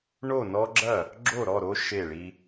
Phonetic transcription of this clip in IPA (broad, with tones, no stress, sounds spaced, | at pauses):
ɳ o˥˩ n ɔ˦ ɡ͡ǁ ɐ˥˩ | ɡ͡ǁ o˥˩ ɾ ɔ˥˩ ɾ o˦ ʃ e˥˩ ɭ i˦